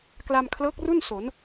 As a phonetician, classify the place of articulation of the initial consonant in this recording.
velar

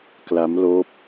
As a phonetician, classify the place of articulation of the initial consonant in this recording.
velar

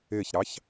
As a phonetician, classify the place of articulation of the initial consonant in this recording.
palatal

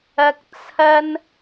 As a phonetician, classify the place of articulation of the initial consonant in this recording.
velar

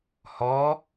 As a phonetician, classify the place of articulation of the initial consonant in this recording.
glottal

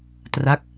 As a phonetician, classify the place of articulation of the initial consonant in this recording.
alveolar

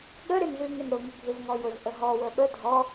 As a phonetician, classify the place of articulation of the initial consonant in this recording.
velar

